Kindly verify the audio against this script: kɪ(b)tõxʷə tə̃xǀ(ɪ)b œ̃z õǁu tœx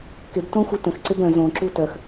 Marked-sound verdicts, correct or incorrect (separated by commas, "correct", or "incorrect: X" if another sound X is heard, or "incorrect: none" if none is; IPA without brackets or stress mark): correct, correct